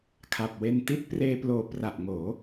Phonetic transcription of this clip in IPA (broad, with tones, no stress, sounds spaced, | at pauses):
kʰ a˨˩ p̚ w e˧ n t i˦˥ t̚ p r eː˧ p l oː˨˩ p r a˨˩ ʔ ŋ oː˩˦